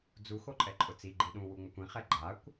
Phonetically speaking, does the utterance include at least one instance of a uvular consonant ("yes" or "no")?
yes